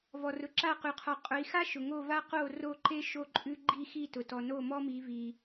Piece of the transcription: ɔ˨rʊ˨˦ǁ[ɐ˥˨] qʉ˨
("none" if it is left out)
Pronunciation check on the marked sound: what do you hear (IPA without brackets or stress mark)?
a˥˨